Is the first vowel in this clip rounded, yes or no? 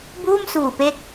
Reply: yes